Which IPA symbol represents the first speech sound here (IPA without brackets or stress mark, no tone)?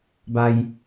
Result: b